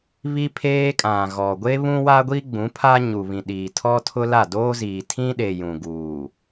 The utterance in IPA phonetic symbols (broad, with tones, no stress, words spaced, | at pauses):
βi˦pʰeː˦kʼã˨ɣɔ˨ ɡʷe˦βũ˦wa˦ɡʷi˦ ɡ͡bũ˨˦pʰa˦ ɲu˨βĩ˨ɗiː˨ tʰɔ˦tʰʊ˦la˦˨ doː˦ziː˨ tʰĩ˦ɗe˨ jũ˨ɡuː˨